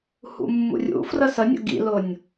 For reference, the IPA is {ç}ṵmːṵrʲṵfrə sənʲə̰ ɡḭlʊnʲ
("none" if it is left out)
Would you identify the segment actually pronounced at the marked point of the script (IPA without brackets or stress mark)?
h